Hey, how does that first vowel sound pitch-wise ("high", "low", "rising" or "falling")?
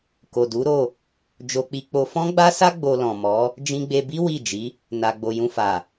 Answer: low